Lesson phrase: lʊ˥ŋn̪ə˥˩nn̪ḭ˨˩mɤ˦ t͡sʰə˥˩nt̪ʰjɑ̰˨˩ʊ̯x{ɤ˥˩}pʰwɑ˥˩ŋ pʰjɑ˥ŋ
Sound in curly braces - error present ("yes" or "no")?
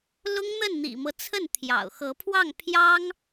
yes